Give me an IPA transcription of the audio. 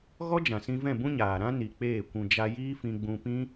ɣ ɔ˦ d͡ʒ ã˨ s ĩ˧ v ɛ̃˦˨ b ũ˦ ɲ aː˨ ɾ ã˦ n i˨ k͡p eː˦˨ kʷ ũ˧ d͡ʒ a˧ j iː˦ f ĩ˧ ɡ͡b ũ˧ p ĩ˦

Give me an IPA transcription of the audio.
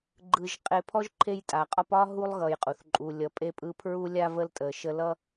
ɡ͡ǃ ɯ˨ ʒ qʼ e˨ pʰ ɔ˦ ʒ ǃʰ e˥ j tʼ a˩ qʼ ɒ˥ p ɒ˥ ɦ u˥ lˠ ɣ ʌ˨ j qʼ u˩ θ ǃʼ u˨ lʲ ʌ˨ pʼ e˦ pʼ ɯ˦ pʰ ɹ u˥ lʲ a˥ v ə˦ l tʼ ə˨ ʃ ə˦ l ʌ˥

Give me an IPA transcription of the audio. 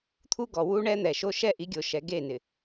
t̪ʰ u˦ ɡ ɔ˨ w u˦ ɳ ɛ˦ n̪ ɛ˨ ʃ o˦ ʃ ɛ˦ ʔ i˨˦ ɡʲ o˨ ʃ ɛ˨ ɡ e˦˨ n ɪ˨

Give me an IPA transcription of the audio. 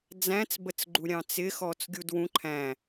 d͡z æ̃ t͡s b ə t͡s ɡ͡ǃ u ɾʲ ɑ̃ t͡s ɪ x ɔ t͡s ɡʲ u d w ũ ǃʰ æ̃

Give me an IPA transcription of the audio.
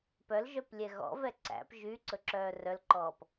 p œ l ʒ œ p lʲ ɛ ɣ ɔ̰ v ɛ ǀ æ̰ p ʒ y ǀ ɵ ǁ œː r œ l ǃ ɔː p

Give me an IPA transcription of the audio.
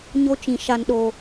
ɲ o˦ t͡ʃ ĩ˨ ʃ a˨ n ɗ o˨

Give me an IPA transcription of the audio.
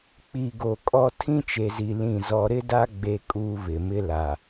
k͡p i˨ ɡ o˨ kʼ ɔ˦ tʰ ĩ˦ t͡ʃ e˨ z i˨ l ĩ˦˨ z ɔ˦ ɾ ɪ˦ d a˦ ɡ͡b e˦ kʼ uː˦ β ɪ˨ m ɪ˦ l a˨

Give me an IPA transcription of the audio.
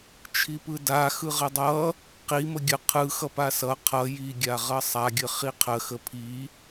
t͡ʃʰ i p ɯ d a x ɯ ʁ ə dˤ ʌ | q i m ə ɡʲ ə qʰ ɯ x ʌ p a s ʌ qʰ ʌ j i ɡʲ a ʁ ʌ sˤ a ɡʲ ə χ i qʰ ə x ə pʰ i

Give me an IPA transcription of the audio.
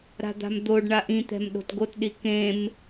ɾ a̤ d̪ a̤ m d̪ o ɖ ɳ a ʔ ĩ t̪ ɛ̤ m ɗ o̤ t ɡ o t ɗ i k ẽ m

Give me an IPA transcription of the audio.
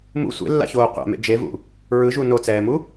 m ṵ sʷ ḛ lː a̰ ç oː qʷ a̰ m ḛ d͡ʒ e v ṵ | ɹ ɯ ʒ u n o t͡s ɛː m u

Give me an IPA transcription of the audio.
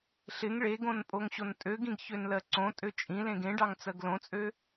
ɬ ɪ ŋ ɭ e ɡ õ n pʼ o ŋ ɕ o n tʼ ø ɡ ĩ ɡ ç ø n l ɜ ǀ õ tʼ ø t͡ʃʼ ĩ l ẽ ɡ ẽ ɖ ɑ ŋ t͡s ɜ ɡ l õ t͡sʼ ø

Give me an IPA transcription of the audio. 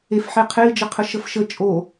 e f ħ e qʰ e i̯ d͡ʒ ə qʰ ə ʃ ə f ʃ ə t͡ʃʼ o

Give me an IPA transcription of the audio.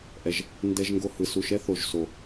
ʔ ɛ˨˩ ʒ | n d ɛ˧ ʒ ŋ ɡ o˧ h ɯ˨˩ s u˨˩ ʃ ɛ˧ θ o˨˩ ʒ s o˨˩

